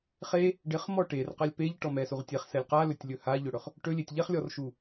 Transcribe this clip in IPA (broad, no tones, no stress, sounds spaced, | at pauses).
χ e | ɖ ɪ χ m ɔ ʈ e r q a lʲ p e ʎ ʈ ɔ m ɛ s u ʁ tʲ e χ s ɛ lʲ q a l ɵ tʲ lʲ ɵ h a ʎ ɵ ɽ ɵ χ | ʈ ɵ lʲ e tʲ ʎ ɛ χ lʲ ɔ r ʃ u